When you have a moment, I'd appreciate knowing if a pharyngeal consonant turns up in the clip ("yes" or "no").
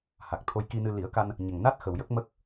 no